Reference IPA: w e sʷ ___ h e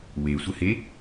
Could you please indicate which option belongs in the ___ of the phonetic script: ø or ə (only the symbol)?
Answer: ə